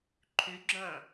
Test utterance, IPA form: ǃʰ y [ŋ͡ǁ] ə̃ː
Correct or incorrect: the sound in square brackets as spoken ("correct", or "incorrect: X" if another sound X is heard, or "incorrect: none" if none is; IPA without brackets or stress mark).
incorrect: ɡ͡ǁ